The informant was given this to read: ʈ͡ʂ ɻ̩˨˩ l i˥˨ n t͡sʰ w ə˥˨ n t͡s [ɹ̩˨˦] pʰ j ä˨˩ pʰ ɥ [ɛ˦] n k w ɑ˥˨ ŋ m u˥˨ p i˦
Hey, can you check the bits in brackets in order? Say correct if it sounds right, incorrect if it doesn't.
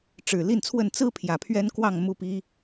incorrect: ɹ̩˦, correct

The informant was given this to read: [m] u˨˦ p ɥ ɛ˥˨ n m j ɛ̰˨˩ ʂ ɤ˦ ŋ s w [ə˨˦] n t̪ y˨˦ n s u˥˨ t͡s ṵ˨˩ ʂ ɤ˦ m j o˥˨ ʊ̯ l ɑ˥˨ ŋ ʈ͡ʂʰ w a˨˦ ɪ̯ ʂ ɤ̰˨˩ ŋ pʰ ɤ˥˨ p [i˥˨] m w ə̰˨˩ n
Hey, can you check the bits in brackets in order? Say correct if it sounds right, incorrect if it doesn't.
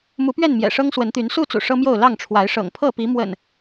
correct, correct, incorrect: i˨˦

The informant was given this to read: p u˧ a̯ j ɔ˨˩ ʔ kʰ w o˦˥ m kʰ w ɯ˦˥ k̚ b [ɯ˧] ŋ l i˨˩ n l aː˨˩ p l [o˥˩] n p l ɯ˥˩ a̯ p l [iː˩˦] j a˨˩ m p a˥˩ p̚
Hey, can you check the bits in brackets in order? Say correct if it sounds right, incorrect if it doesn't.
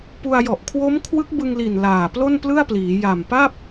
correct, correct, correct

